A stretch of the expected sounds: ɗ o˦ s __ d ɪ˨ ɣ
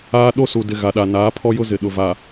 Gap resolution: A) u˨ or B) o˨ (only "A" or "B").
A